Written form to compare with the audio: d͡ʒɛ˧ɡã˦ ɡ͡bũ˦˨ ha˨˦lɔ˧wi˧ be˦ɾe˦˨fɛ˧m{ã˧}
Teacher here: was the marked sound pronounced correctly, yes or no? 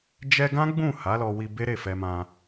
yes